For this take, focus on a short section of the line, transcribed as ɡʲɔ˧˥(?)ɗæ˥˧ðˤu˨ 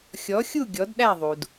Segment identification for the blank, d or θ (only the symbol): d